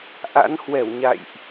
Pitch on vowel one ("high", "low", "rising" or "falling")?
rising